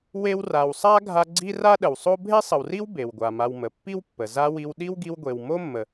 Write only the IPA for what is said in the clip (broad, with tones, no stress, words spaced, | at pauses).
we˦wra˨wsˤa˥ ɡʱa˦ɡ͡ǀi˥ ra˦ɗə˩wsˤo˦ bʱe˥sˤə˨wri˥w be˩wɡʷa˩ma˨wmə˩ pːi˥wpːə˩ za˥wi˦w ɗi˥wɡi˦wɡʷe˨w mo˥mːə˨